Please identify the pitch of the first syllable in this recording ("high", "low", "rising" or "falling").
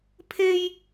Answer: high